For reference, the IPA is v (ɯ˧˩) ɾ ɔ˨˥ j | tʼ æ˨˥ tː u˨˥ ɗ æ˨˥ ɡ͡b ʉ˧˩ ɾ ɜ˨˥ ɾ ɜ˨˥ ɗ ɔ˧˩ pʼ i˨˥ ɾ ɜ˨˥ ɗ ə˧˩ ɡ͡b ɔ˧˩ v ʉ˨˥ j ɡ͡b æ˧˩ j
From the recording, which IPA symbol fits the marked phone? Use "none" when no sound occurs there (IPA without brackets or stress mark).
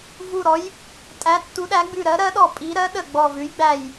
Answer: u˧˩